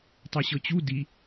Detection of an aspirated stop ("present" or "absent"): absent